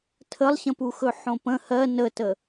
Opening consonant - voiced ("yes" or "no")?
no